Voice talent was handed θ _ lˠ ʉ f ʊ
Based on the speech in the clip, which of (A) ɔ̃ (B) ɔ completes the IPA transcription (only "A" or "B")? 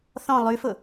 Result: A